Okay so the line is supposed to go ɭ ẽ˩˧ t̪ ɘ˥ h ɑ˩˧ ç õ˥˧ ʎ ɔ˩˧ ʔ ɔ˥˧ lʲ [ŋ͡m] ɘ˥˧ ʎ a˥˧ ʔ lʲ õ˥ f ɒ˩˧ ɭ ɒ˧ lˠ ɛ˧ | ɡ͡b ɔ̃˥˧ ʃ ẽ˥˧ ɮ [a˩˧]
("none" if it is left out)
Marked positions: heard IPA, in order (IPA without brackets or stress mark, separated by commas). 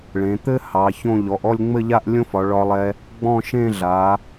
ŋ͡m, a˩˧